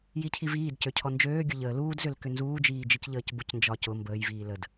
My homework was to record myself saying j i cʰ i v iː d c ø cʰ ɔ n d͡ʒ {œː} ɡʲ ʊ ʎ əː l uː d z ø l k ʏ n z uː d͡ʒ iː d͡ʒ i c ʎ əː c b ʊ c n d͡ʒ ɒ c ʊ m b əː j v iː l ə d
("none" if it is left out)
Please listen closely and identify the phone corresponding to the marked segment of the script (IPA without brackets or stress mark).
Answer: øː